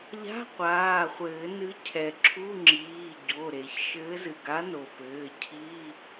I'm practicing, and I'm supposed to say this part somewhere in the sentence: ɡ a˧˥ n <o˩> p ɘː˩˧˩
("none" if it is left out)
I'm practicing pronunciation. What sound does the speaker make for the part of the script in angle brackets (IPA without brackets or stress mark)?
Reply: o˩